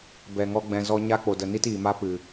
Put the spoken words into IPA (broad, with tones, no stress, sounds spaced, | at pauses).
b ɛ˨ ŋ ɔ˧ ɡ͡b ɛ̃˨ z ɔ˧ ɲ a˦ k͡p o˨ d ə˨ n i˦ t iː˨ m a˦ p ɨ˨